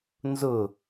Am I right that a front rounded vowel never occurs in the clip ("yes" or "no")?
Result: yes